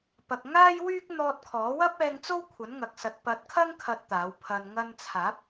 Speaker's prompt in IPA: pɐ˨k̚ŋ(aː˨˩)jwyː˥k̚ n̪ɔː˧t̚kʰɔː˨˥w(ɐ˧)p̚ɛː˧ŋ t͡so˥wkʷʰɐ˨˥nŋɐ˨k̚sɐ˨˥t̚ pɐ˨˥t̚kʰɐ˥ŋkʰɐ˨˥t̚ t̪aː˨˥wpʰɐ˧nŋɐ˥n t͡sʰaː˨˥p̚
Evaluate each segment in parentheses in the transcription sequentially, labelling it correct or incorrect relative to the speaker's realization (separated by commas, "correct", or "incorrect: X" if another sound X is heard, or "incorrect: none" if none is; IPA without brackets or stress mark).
incorrect: aː˥, incorrect: ɐ˥